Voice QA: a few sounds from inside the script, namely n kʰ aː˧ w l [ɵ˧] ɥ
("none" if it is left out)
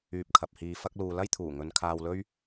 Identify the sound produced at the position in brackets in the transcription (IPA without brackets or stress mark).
ɵ˥